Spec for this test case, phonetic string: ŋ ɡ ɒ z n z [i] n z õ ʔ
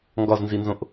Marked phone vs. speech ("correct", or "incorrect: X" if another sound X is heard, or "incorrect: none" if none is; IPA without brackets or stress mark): correct